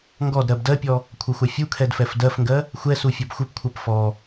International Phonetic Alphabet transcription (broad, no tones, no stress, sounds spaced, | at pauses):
ŋ ɡ ɔ d ɾ ɜ b d ɜ pʲ ɔ | kʷʰ ɐ xʷ a fʲ u kʰ ɛ d f ɛ f d ɜ f ŋ ɡ ɜ | xʷ ɛ s u fʲ ɐ b xʷ ɘ p kʷʰ ɜ p f ɔ